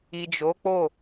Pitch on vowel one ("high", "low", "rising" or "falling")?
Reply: low